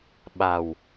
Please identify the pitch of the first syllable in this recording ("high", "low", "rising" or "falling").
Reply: low